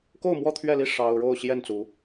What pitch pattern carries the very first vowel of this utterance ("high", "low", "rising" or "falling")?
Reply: falling